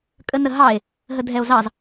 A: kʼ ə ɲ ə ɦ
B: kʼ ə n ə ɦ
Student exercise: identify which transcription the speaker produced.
B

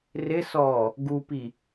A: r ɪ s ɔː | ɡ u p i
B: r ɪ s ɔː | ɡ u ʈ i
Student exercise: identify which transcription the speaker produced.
A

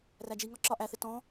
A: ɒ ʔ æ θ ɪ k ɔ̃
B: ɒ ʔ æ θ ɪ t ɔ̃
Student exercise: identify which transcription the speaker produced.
B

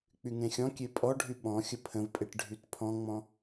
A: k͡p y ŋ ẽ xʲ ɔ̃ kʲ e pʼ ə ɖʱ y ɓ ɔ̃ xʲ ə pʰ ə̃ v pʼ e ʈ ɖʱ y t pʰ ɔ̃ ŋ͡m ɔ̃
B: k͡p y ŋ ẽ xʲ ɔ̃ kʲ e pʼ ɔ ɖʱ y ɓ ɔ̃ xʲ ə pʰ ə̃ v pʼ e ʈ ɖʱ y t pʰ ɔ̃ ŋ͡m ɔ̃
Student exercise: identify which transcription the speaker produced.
B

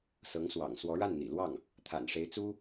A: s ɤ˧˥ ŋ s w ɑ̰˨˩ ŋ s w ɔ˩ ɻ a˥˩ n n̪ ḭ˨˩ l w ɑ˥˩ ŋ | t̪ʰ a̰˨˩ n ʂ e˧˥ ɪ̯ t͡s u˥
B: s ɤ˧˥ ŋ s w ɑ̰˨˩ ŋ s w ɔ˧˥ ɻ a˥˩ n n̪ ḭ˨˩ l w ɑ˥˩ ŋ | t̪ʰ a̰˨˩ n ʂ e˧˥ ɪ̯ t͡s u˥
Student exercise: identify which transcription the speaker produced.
B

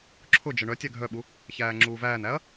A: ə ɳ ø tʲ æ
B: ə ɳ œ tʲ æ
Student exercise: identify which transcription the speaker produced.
B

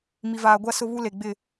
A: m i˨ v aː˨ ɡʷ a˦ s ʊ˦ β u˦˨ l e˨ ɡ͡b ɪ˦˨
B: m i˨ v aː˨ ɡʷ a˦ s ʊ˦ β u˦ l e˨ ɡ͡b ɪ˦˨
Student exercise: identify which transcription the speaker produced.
B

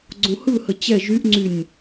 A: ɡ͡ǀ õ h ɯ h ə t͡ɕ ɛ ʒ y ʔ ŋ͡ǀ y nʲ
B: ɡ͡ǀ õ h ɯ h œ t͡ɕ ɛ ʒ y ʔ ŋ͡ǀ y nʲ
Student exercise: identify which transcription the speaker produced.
A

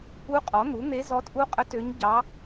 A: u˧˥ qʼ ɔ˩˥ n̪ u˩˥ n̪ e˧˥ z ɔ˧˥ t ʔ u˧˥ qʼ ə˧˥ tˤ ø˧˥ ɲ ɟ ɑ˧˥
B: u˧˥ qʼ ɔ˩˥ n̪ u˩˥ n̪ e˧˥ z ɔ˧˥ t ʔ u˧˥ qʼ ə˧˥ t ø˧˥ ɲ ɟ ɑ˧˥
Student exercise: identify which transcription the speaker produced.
B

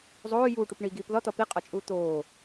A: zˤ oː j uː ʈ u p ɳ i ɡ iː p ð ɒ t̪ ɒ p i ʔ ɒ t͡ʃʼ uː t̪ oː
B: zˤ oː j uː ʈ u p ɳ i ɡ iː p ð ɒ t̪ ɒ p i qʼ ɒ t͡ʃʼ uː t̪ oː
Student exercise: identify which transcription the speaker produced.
B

